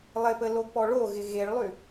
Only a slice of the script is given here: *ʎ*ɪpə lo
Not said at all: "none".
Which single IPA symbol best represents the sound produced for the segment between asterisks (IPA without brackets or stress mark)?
lˠ